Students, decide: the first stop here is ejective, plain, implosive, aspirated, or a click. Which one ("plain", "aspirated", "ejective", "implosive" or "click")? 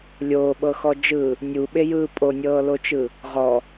implosive